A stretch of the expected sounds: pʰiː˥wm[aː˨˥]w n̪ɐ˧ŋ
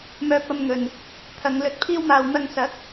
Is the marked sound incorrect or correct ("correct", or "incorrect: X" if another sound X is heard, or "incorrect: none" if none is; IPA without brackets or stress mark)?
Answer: incorrect: aː˧